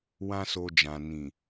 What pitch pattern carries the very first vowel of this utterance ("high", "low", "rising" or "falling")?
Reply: high